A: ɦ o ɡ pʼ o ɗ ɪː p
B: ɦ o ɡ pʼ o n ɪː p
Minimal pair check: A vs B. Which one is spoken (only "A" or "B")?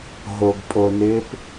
B